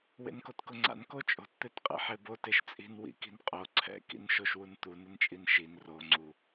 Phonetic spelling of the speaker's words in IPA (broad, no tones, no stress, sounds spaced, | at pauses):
w ḛ n k o t k ʊ ŋ͡ǀ a̰ n k o t͡ʃʼ o̤ t t̪ e t qʼ ḛ ħ e b o t e ʃ t͡sʼ i̤ n w ḭ k i̤ n qʼ o ǀʰ ɛ̰ k ḭ n ʃ o ʃ w u n t̪ u n ɪ n t͡ʃʼ i n ʃ i n r o ŋ͡ǀ u